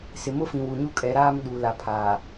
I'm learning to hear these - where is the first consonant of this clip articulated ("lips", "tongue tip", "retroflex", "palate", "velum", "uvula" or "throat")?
tongue tip